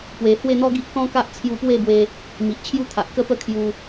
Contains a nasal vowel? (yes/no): yes